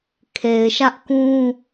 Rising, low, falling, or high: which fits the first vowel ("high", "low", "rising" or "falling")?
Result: low